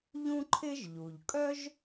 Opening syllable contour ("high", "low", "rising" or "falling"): high